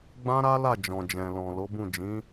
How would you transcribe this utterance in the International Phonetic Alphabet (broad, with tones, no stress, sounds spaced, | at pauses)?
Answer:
ɡ͡b ã˦ ɾ a˦ l a˦˨ d͡ʒ ɔ̃˨ d͡ʒ ɛ̃˨ l ɔ̃˨ l o˨˦ b ũ˦˨ d͡ʒ ĩ˨˦